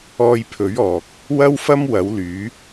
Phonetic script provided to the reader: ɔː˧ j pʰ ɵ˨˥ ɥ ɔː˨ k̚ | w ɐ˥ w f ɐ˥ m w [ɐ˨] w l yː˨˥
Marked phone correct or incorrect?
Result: incorrect